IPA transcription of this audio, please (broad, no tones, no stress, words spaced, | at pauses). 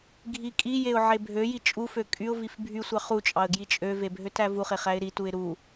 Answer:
ɡʱikʼijeʊ̯ ʕebʱøji t͡ʃʼufø kʼyʊ̯vif bʱysʷɑ χut͡ʃʼɑə̯ ɡjit͡ʃʼøve bʱøtævuχeχ æɪ̯ɾituɪ̯ ɾu